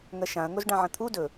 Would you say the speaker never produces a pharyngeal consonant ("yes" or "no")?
no